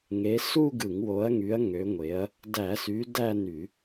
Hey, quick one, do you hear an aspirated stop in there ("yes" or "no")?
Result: no